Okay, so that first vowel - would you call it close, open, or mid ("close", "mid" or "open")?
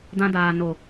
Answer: open